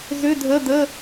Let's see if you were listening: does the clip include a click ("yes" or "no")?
no